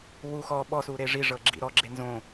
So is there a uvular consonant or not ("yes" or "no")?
no